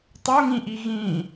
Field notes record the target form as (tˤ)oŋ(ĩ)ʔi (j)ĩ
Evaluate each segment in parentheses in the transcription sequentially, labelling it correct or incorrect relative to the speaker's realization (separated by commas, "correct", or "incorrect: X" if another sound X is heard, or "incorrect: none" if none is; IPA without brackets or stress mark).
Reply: correct, correct, incorrect: ɣ